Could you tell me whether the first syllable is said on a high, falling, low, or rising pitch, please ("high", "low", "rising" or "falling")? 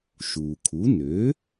low